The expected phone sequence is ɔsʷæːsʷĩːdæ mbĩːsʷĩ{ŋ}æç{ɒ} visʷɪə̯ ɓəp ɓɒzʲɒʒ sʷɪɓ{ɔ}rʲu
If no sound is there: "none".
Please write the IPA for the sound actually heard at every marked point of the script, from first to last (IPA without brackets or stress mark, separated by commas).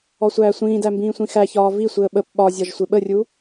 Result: x, ɒː, ə